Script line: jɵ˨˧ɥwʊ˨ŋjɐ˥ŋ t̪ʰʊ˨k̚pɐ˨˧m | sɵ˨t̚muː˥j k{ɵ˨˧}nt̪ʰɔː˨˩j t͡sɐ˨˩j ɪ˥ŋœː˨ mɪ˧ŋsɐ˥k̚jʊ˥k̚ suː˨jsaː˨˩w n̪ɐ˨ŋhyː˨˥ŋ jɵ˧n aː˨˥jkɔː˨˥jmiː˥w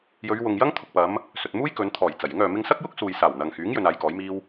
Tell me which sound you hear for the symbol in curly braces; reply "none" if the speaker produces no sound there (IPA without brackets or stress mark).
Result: ɵ˨˧